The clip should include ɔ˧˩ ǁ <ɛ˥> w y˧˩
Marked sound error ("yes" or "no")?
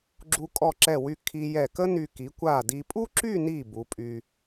yes